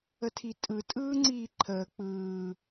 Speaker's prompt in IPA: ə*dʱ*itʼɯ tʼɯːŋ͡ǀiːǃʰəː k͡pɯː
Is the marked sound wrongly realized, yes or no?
yes